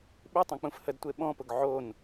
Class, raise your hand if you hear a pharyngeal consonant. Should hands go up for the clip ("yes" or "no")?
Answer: yes